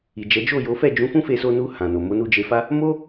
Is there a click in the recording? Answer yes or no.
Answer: no